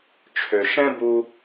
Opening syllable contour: low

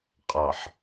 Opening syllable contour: low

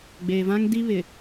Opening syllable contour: low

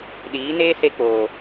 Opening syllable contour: rising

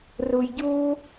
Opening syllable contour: low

